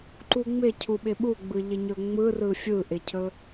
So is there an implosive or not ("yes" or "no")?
yes